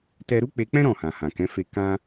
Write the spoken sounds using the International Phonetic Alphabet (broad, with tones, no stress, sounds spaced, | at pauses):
t ɛ˧ ɾ u˦ k͡p e˧ k͡p ɛ̃˦ ɾ ɔ̃˦˨ h ã˨ h ã˨ k ɛ̃˨˦ f e˧ k ã˦